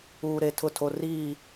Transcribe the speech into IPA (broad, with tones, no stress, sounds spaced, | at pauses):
uː˨ ɾ e˨ tʰ ʊ˦˨ tʰ o˨ r iː˦˨